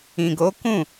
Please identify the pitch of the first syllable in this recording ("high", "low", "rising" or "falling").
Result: low